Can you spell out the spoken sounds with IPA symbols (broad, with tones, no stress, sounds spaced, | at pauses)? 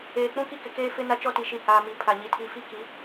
eː˨ k͡p ũ˦ k i˦ k ɪ˨ k eː˦ f ɪ˦ n a˦ t͡ʃ ɔ˦ t i˨ ʃ i˨ h aː˨ m i˨ pʰ a˨ ɲ i˨ tʰ i˨ f i˦ k i˨˦